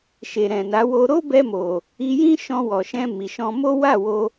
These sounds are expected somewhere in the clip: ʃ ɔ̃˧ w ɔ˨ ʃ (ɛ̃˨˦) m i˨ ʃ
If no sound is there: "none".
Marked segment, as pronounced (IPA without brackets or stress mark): ɛ̃˧